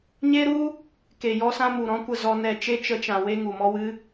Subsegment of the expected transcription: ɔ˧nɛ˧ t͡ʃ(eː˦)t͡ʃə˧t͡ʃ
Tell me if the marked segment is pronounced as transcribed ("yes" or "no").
no